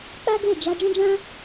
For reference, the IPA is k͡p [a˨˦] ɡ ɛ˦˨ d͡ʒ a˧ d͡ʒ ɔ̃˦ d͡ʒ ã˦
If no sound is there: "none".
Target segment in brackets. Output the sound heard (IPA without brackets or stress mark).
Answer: a˦